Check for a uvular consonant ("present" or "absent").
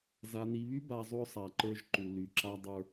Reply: absent